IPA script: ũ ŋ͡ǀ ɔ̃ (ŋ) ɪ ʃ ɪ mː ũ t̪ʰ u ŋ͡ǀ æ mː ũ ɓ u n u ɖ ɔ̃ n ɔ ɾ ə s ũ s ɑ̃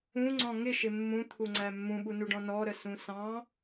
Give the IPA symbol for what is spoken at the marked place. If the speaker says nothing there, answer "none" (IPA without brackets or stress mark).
ŋ